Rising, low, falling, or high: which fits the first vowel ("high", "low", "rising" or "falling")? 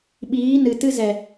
rising